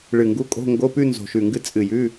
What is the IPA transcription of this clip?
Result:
ɭɨ˧˩ŋɡu˧˥˧ kʼo̤˧˥˧ŋɡo˧˥˧pʉ˥˧ nzo̤˧˩ʃʉ˧˩ŋɡɨ˥˧ t͡sʼɨ˧˩jʉ˧˥˧

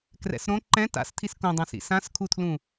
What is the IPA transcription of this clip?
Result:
krɛ̰sɾõ ǃɛ̃ ta̰stʰis kõdˤãsḭ sãskʰutʰlũ

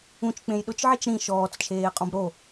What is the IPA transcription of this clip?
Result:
ũt͡ʃk͡pẽj ɗʊt͡ʃʕit͡ʃ ɾĩ ʃɔːt͡st͡ʃʰeːqʼɔ̃b ɾo

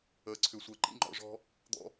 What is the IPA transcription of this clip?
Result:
əː˨˩ǀʰʏ˨˩˦sʷɛ˨˩ ǃḭ˥ŋ͡ǃɔ̰˨˩˦ʐɔ̤˥ | d̪ɔ̰˥

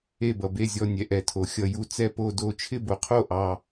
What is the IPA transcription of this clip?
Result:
e˥˧bʌ˧be˥˧zʲɔ˥˧ nʲɛ˧ʔɛ˧tʰo˧ xʲʌ˥˧ju˥˧ t͡sɛ˥˧po˥˧do˥˧ t͡ʃʰɪ˥˧bo˧qʰo˥˧ʔɑ˧

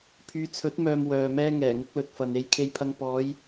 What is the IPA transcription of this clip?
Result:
pʰyː˨˧t͡sʰɵ˨˥t̚mœː˨m wœː˨ mɛː˥ŋɛː˨˩ŋʊ˥k̚ lɵ˨t̚fɐ˨n e˧jkʰe˧jpʰɐ˧ŋ pɔː˨˧j

